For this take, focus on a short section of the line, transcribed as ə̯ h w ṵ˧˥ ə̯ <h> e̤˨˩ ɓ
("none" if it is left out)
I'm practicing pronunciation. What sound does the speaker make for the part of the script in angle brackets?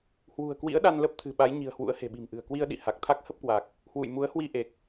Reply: h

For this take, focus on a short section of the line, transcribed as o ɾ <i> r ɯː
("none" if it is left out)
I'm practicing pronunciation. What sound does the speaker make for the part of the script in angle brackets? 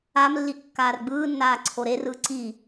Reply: e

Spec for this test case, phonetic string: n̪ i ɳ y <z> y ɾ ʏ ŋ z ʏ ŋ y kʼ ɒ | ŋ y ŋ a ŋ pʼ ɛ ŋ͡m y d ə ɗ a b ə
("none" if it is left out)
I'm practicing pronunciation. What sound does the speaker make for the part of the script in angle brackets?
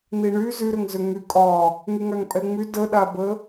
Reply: z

